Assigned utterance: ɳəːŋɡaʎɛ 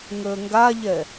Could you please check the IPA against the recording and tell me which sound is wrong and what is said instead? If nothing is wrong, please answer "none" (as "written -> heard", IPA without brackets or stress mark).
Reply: ɳ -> ŋ